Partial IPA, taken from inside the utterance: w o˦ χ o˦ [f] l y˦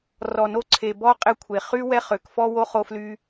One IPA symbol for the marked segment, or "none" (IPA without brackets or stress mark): f